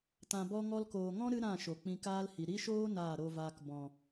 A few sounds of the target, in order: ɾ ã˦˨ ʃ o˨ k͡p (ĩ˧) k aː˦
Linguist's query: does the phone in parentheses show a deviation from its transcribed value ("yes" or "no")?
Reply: no